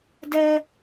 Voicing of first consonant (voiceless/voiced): voiced